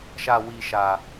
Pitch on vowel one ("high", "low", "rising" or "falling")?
high